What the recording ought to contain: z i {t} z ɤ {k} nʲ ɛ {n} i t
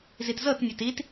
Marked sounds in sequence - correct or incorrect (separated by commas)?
correct, incorrect, incorrect